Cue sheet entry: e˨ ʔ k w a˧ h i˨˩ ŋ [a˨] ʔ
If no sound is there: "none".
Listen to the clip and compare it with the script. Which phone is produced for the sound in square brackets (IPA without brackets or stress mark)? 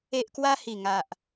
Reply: a˨